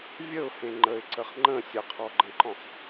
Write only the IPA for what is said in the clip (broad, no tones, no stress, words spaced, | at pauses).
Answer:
vʲəʊ̯hẽ ŋ͡ǃəɪ̯ǀəχ ŋ͡ǃə̃ sʲəqʰɔɡ͡ǃə̃ǃɔ̃χ